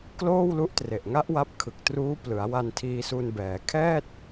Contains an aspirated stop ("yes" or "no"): yes